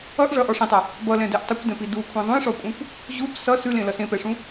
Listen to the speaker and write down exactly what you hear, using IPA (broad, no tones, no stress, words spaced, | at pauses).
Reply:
ʌʔ ʐʌʔɔ ʂĩtˤa | bʌlɛ̃dɛʔ tˤʌkʷdɛ̃pi dukʷʰɛ̃ ðˤũjʂɔkʷʼãkʷ | ʑup sʌ sʉlẽlʌ sẽpɛʂũ